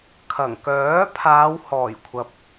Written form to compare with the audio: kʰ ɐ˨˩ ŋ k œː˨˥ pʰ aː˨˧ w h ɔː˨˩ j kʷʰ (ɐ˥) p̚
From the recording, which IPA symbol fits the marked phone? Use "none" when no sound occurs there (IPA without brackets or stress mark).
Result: ɐ˨